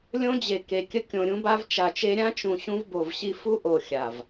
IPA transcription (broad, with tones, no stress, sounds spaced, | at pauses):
lʲ õ˦ d͡ʑ e˨ k e˨ kʲ ə˦ kʲ õ˨ ɾʲ ũ˦ b a˦ v t͡ʃ a˨ t͡ʃ e˦ ɾʲ ã˦ t͡ʃ ũ˨ ɕ ũ˦ v b o˨ v ɕ i˦ f u˦ ʔ o˨ xʲ a˨ v